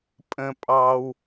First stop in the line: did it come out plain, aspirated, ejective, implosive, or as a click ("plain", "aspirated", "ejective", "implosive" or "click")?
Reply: ejective